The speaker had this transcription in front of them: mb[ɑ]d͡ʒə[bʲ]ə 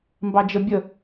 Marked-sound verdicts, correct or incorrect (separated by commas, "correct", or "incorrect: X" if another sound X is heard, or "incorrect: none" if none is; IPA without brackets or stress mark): correct, correct